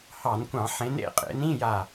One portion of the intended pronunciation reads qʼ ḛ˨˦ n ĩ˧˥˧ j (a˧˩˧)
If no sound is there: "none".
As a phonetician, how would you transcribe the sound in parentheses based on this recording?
a˧˩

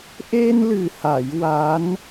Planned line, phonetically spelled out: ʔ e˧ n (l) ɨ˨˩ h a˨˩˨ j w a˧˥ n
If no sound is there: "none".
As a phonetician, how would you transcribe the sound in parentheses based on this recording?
l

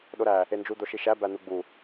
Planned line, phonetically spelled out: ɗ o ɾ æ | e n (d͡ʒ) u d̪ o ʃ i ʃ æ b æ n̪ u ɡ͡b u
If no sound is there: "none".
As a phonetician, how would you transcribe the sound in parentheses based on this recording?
d͡ʒ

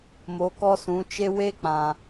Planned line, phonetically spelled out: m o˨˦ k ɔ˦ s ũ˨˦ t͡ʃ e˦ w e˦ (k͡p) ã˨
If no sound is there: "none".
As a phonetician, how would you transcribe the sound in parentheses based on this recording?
k͡p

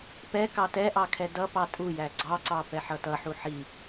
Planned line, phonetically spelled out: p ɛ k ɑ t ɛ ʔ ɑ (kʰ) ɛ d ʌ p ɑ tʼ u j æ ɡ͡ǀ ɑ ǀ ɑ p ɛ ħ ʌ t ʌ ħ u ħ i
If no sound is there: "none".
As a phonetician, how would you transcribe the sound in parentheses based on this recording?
kʰ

